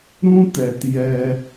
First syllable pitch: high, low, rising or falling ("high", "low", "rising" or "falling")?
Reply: high